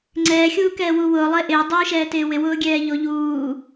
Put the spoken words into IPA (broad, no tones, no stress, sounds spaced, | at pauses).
ŋ͡ǀ ɛː xʲ uː k ɛː w u w ʊː lˠ e ʔ ɪː dˤ uː ʃ ɛː t ɪː w ɪ w ʊː ɡʲ ɛː ʎ o ʎ uː